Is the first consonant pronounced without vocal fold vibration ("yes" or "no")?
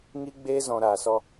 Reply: no